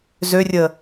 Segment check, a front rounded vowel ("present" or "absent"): present